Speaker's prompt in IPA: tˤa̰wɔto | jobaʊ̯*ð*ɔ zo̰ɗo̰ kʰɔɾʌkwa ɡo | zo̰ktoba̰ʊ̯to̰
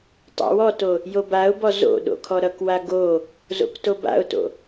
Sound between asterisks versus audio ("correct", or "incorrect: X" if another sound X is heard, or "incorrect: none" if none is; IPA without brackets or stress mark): incorrect: b